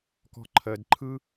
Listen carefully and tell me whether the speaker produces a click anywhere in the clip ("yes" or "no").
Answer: yes